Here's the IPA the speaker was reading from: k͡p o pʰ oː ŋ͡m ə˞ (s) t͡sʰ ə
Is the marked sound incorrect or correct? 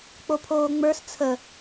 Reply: correct